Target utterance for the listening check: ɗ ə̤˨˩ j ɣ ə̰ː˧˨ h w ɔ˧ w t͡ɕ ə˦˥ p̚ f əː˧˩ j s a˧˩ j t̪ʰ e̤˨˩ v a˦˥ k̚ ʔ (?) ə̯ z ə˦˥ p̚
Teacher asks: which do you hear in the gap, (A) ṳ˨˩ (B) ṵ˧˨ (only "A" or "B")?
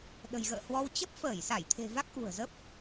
A